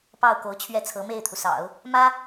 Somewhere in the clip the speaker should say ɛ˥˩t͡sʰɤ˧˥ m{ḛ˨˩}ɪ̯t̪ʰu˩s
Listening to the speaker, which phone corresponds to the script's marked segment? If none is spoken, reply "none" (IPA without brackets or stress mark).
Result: e˥˩